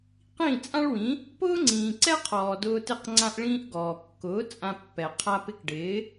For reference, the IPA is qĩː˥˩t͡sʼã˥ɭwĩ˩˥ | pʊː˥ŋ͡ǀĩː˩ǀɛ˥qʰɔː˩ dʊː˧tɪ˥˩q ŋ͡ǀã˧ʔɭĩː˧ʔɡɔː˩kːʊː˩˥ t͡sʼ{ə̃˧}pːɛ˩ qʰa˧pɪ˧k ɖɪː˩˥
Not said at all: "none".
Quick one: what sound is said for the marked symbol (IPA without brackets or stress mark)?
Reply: ã˧